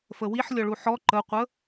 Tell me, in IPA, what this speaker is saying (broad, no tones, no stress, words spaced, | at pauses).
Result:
fəwiħlʲɔɭu ħɔ ǃəqʷə